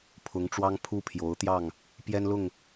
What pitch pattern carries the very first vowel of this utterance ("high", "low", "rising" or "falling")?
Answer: rising